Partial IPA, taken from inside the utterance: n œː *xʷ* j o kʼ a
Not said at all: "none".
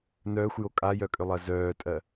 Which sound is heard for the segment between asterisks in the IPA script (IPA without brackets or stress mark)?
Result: xʷ